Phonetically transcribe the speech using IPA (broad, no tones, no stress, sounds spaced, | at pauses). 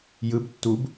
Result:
j ɯ b tː u b